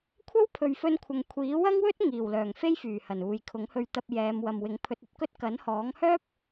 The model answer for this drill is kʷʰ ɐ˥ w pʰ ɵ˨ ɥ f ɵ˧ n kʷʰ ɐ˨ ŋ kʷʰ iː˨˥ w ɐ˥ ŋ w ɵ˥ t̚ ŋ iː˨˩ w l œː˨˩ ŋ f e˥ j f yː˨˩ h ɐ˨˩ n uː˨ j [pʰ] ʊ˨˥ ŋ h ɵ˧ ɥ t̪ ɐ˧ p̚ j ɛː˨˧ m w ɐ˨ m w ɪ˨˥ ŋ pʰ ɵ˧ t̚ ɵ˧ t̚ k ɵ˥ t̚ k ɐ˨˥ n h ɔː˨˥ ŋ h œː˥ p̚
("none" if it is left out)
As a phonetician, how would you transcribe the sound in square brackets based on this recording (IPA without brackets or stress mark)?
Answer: kʰ